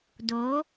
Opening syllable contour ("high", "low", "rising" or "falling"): rising